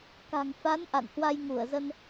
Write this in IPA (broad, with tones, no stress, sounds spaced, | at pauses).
k a̤˨˩ ŋ f a˨˦ n ʔ a̰˧˨ n h w a˧ j ŋ u˧˩ ə̯ z ə˧ n